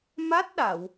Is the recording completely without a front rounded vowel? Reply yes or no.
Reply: yes